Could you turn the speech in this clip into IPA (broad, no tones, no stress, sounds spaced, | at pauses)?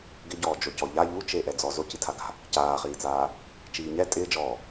ɡ ɪ ɟ ɔː d͡ʒ o c ɔ ʎ a ʎ u t͡ʃ e ʔ ɛ d͡z ɔ z o c i tʰ a ɡ a̤ | c aː χ iː t͡s aː | t͡ʃ iː ɲ ɛ tʼ ɪː d͡ʒ ɔː